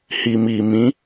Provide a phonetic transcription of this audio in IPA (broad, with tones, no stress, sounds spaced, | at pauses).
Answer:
h i˨ m i˨ m ĩ˨˦